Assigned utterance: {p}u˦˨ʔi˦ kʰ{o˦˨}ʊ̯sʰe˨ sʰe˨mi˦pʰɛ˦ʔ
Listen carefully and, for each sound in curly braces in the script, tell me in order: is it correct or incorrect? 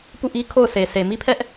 correct, correct

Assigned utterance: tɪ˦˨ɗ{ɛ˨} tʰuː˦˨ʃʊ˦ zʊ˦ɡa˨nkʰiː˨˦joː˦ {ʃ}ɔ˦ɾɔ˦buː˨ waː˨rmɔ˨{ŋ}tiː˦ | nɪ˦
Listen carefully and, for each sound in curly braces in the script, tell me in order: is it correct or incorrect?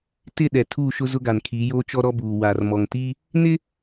correct, incorrect, correct

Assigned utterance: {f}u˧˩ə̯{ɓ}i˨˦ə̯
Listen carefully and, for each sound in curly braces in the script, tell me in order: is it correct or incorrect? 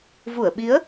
incorrect, correct

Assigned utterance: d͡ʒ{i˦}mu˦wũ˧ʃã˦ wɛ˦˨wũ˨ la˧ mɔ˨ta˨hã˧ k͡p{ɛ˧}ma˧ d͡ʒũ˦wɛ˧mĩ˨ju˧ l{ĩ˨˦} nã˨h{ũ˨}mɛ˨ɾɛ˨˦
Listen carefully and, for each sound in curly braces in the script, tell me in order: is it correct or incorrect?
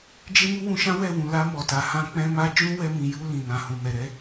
incorrect, incorrect, incorrect, correct

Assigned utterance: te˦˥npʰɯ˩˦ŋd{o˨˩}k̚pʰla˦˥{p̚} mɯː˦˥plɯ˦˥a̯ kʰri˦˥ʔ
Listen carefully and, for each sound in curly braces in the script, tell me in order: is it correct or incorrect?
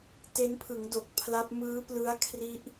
correct, correct

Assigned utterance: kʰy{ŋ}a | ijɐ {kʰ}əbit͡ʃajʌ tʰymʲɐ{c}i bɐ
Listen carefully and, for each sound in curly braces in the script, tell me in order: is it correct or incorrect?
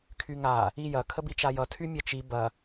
correct, correct, incorrect

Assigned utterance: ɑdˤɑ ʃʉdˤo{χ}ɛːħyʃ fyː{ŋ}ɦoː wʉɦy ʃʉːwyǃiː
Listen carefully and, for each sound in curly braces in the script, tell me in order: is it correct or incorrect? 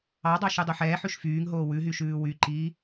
incorrect, correct

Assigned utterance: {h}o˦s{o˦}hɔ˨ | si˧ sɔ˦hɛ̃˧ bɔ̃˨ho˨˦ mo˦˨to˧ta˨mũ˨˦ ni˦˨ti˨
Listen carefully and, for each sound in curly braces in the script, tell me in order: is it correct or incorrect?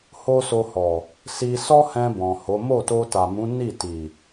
correct, incorrect

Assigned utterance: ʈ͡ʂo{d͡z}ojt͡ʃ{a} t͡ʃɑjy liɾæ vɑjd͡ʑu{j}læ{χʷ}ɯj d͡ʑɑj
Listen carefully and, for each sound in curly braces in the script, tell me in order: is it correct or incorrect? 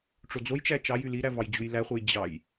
correct, incorrect, correct, correct

